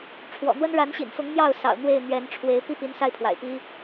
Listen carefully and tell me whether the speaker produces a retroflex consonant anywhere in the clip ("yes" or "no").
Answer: yes